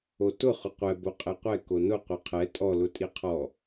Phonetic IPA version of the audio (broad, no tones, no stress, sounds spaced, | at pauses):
o t ʊ χ ʊ qʷ ɛ b o qʼ e qʷ ɛ k o n ʊ qʷ e qʰ ɛ tʼ ɔ l ʊ tʼ i qʰ ɔ